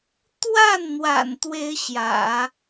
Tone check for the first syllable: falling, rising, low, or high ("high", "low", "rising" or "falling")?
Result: falling